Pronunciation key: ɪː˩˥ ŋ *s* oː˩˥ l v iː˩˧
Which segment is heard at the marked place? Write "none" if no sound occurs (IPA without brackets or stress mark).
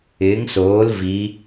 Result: s